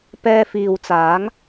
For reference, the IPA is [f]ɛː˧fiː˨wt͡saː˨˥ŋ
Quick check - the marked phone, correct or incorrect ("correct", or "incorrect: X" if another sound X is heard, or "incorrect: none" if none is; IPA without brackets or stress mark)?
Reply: incorrect: p